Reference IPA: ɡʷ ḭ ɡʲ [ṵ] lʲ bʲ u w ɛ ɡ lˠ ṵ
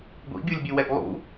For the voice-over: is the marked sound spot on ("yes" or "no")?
no